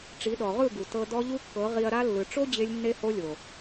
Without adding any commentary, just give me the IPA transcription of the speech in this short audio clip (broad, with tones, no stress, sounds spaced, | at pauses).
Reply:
ʈ͡ʂ i˨˦ ɗ ɔ˨ ʁ ɯ˦˨ ɡ u˨ t ɤ˧ d ɔ˦ ʎ u˦ kː ɤ˨˦ ʁ i˧ ɐ̯ ɾ a˦ lː ɯ˨ ʈ͡ʂ o˦ d͡ʑ e˦ lʲ nː e˦ h o˦ lʲ o˨